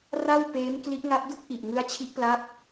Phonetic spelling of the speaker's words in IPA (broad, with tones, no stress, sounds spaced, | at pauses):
r a˥˩ w p eː˦˥ m k l i˦˥ ʔ ŋ a˦˥ p̚ d u˥˩ k̚ ʔ i˨˩ ʔ ŋ ɯ˦˥ a̯ t͡ɕʰ i˦˥ ʔ p l a˦˥ p̚